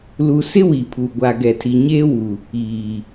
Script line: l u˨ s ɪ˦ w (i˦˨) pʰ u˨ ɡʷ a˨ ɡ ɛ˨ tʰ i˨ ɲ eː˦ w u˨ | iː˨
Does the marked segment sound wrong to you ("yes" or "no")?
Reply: yes